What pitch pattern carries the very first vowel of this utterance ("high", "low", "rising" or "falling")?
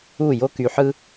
falling